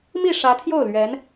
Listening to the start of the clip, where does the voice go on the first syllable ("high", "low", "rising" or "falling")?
falling